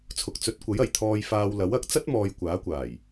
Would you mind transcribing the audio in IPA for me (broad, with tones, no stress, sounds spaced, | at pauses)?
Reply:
t͡sʰ ʊ˨ k̚ t͡s ɵ˨˥ t̚ kʷ ɐ˨˥ j ɐ˨˩ j t̪ʰ ɔː˧ j f aː˧ w l ɐ˨˥ w ɐ˨˥ k̚ t͡s ɐ˥ t̚ m ɔː˧ j kʷ aː˨˥ kʷ aː˨˩ j